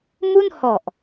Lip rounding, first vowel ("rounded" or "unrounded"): rounded